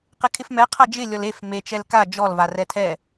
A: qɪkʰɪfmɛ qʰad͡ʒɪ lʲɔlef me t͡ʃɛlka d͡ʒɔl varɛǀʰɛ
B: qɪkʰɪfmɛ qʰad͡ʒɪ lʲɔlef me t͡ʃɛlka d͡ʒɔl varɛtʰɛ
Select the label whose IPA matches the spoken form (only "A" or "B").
B